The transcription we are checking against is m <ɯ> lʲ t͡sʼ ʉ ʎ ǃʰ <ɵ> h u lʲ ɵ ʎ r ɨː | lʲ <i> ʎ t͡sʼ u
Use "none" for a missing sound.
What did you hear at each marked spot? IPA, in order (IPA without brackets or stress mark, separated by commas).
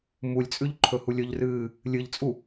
u, ɵ, ɨ